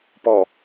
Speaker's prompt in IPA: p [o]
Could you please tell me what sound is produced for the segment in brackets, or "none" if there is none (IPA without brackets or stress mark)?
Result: ɔ